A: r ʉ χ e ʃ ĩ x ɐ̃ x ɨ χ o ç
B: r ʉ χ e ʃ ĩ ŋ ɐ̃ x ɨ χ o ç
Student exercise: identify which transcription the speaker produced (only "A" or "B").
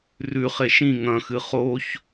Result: B